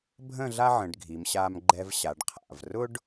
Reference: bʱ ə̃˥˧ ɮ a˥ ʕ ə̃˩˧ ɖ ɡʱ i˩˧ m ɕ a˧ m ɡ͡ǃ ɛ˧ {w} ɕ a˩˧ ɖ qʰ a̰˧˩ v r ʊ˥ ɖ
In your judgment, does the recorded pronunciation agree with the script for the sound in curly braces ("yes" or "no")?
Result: no